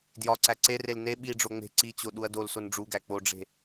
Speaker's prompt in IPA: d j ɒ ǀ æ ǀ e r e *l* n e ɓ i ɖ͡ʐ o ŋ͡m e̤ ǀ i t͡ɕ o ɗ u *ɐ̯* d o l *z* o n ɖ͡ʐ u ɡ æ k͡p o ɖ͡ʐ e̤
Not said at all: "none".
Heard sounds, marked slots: l, ɐ̯, s

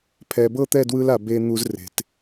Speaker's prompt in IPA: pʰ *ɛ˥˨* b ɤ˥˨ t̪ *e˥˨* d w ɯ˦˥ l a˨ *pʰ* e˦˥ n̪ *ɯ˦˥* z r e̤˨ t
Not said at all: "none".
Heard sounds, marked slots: ɛ˨, ɛ˥˨, b, u˦˥

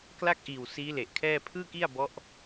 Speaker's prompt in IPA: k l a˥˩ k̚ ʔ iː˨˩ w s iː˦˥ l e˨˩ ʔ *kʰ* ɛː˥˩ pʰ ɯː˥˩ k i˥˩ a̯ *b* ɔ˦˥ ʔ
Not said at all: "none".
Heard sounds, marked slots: kʰ, b

